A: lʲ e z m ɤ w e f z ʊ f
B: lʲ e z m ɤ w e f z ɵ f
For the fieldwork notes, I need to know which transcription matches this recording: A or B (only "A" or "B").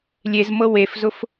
A